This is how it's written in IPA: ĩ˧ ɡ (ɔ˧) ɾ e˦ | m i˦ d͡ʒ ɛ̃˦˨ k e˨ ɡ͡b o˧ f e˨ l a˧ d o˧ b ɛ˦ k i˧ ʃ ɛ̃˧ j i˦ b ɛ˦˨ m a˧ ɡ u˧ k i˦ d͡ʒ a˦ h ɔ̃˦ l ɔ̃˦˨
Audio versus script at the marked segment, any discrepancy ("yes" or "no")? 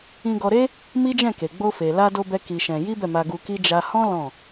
no